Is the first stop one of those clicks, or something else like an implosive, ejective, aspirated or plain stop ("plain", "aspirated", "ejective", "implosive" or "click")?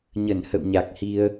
plain